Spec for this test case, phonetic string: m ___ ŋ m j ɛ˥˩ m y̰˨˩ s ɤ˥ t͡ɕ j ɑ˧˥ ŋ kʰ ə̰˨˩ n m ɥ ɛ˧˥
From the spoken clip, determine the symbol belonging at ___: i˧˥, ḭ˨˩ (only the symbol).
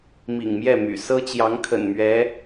ḭ˨˩